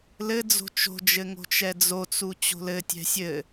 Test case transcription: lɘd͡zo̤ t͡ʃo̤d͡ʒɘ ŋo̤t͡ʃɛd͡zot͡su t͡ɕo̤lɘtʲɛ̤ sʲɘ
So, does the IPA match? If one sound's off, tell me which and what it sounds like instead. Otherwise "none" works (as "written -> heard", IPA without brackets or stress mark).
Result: none